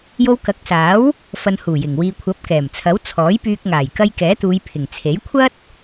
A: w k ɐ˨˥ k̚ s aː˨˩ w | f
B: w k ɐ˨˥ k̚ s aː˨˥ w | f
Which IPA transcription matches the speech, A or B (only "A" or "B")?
B